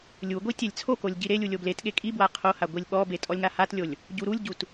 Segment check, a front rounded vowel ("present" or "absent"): absent